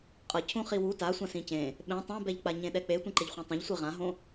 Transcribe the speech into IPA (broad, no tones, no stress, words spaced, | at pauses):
qʼʌ cʰũχiwu tasʷã sĩcẽ | ɓẽ tˤãbɛʎk͡paɲẽ ɗɛk͡pe tʷẽǃeʎχʷãtˤõʎ sʷiʁãɦõ